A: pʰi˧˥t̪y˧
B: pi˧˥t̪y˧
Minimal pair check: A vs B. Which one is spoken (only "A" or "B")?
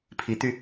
A